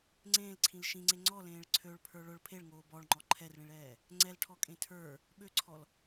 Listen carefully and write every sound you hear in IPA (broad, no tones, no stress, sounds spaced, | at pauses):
ŋ͡ǀ ẽː l ǀʰ ĩ l ʃ ĩ ŋ͡ǀ e ŋ͡ǀ ɔ l ẽː ɭ ǀʰ ø ɭ pʰ ə˞ ɭ ʊ ɭ pʰ e ɭ ŋ oː b ɔ ɭ ŋ͡ǃ ɔ ǃʰ ɛ r ɭ ĩ ɭ ɛː | ŋ͡ǀ ɛ l ʈʰ ɔ kʼ ẽ tʰ ə˞ | ɓ ø ǀʰ ɔ l